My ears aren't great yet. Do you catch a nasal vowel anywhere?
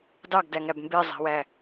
no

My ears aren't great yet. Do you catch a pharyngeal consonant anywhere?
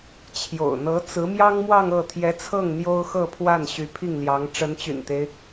no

